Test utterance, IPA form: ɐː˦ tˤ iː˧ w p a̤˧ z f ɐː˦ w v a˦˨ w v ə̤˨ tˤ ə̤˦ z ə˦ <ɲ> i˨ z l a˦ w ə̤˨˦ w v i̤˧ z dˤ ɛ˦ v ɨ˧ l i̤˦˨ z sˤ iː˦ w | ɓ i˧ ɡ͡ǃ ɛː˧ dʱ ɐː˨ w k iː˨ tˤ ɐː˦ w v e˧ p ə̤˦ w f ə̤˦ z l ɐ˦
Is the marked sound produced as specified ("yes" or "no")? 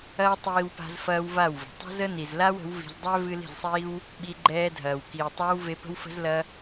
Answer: no